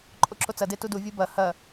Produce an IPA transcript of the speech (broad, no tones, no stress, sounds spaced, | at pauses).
ǃʼ o ǁ o t͡s ɐ d e t u d u vʲ u b ɐ h ɐ